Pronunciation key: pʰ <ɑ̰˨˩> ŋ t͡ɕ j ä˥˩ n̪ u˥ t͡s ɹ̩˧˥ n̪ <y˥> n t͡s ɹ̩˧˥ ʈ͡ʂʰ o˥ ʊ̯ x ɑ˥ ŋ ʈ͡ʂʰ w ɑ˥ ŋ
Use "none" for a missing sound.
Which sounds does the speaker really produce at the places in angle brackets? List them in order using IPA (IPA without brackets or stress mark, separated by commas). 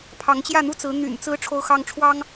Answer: ɑ˧˥, y̰˨˩